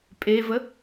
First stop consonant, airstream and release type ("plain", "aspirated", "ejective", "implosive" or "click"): ejective